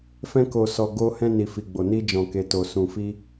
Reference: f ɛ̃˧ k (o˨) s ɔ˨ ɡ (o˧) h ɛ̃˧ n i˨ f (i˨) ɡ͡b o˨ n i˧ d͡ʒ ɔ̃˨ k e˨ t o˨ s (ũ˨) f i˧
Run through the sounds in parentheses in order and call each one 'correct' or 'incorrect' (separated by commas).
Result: correct, correct, correct, correct